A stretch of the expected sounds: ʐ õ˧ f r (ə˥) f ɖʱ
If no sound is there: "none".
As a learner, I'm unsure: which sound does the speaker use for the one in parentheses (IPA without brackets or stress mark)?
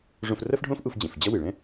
ɐ˥